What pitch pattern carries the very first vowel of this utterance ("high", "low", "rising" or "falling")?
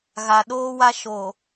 low